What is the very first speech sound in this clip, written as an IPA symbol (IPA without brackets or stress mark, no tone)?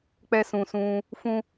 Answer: k͡p